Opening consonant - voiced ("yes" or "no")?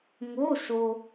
yes